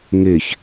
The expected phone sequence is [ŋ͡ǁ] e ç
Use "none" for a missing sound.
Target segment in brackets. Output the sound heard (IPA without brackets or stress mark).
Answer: ŋ